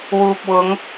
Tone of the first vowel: low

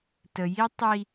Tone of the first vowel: low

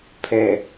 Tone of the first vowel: low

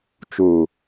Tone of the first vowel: low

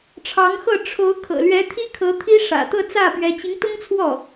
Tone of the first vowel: rising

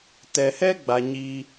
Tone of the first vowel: low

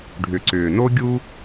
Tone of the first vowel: low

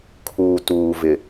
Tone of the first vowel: low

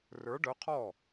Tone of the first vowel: rising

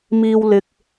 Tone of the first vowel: high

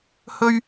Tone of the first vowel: high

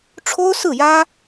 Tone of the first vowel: high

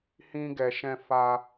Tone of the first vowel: high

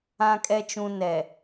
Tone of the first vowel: low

